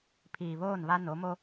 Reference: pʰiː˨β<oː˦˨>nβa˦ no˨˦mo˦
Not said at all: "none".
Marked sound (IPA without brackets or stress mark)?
oː˦˨